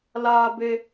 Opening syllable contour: high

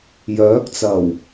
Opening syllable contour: rising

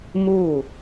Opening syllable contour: falling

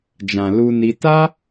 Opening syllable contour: low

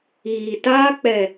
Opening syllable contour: low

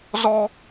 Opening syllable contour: high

